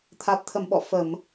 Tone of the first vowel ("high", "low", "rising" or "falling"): low